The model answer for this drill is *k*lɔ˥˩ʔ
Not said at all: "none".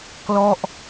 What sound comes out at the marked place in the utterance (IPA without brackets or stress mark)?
k